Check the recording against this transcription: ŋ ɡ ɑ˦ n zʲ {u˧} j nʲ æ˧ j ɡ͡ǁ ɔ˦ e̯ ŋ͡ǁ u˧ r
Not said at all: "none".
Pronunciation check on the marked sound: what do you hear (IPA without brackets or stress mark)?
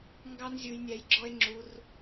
u˧